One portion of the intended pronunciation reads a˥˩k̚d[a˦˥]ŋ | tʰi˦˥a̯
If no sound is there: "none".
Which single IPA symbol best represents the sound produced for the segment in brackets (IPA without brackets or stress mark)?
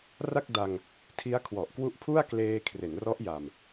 a˧